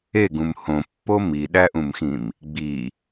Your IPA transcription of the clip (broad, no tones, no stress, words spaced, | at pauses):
eɡũm hõpːo miɗæʔũmxĩm | ɡ͡bi